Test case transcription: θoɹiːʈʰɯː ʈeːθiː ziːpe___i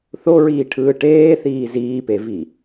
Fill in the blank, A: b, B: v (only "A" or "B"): B